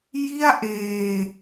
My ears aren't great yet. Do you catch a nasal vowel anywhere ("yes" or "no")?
no